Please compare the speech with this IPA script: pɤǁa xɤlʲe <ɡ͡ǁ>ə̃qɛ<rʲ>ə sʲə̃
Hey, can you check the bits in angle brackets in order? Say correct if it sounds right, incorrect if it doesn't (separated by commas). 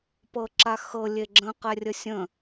correct, correct